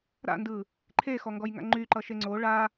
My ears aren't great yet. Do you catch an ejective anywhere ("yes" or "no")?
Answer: no